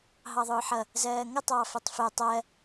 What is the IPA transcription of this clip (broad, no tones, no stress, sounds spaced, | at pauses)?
ɦ ɑ ðˤ ʊː ħ ʌ | z ɜː ŋ ʌ tˤ ɑː f ʌ tˤ f ɛ tˤ ɜ